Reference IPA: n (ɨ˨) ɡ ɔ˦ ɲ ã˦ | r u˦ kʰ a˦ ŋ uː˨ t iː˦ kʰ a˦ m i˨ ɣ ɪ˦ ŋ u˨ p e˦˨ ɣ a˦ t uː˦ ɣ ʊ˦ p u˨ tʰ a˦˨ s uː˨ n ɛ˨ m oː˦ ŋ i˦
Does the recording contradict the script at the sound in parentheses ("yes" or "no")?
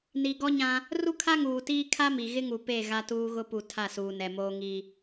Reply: yes